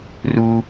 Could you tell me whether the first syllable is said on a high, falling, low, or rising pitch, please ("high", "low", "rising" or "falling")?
high